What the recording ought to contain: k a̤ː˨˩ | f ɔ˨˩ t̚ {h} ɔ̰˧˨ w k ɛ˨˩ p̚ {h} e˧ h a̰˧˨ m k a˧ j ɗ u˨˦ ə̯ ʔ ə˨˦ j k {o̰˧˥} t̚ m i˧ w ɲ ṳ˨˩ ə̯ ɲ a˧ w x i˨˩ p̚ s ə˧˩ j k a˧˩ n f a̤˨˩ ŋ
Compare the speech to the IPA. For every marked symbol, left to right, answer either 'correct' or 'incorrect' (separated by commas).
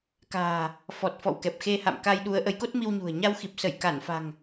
incorrect, incorrect, incorrect